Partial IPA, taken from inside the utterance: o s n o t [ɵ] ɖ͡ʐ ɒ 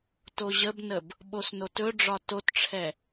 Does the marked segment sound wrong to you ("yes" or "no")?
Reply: no